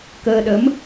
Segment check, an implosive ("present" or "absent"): present